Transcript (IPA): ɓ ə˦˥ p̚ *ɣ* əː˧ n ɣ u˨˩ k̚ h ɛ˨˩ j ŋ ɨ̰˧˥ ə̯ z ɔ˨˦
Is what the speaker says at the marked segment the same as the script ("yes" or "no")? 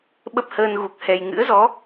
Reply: no